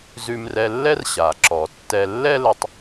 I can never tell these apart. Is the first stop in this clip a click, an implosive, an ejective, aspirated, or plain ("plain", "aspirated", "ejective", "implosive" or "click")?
click